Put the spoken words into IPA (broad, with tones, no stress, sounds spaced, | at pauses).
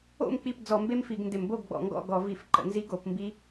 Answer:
o̰˥˩ m k͡p i˥˩ p d͡z ɔ˧˩˧ m b e˦ m f i˧˩˧ ɡ n d ɪ˧˩˧ m b o˥˩ ɡ ɡ͡b ɔ̰˧˩˧ ŋ ɡ ɔ̰˥˩ ɡ ɔ˧˩˧ v i˧˩˧ f ǃ ə̰˧˩˧ n z i˦ ɡ o˧˩˧ p m b i˦